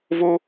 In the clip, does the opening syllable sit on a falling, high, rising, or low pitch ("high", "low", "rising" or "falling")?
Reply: high